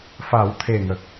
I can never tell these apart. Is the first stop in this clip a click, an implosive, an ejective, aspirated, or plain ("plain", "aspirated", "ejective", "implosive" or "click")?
aspirated